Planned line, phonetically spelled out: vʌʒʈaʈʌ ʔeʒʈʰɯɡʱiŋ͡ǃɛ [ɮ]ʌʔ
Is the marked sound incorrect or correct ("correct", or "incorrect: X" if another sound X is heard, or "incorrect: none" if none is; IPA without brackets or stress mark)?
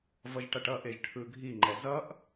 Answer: incorrect: z